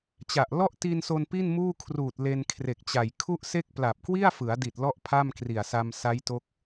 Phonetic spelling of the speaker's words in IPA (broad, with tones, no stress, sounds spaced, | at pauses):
t͡ɕ a˨˩ ʔ l ɔ˥˩ ʔ t i˧ n s o˧ n p i˥˩ n m uː˥˩ kʰ r uː˨˩ t̚ l e˧ n kʰ r e˨˩ k̚ t͡ɕ a˨˩ j kʰ u˥˩ ʔ s e˥˩ k̚ p l a˨˩ p̚ k w i˥˩ a̯ f ɯ˩˦ a̯ d i˨˩ t̚ l ɔ˥˩ ʔ pʰ a˥˩ m k r i˨˩ a̯ s a˧ m s a˦˥ j t o˦˥ k̚